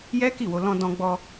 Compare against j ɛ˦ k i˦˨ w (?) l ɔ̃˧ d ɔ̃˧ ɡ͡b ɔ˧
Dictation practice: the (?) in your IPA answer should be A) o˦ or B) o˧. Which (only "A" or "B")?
B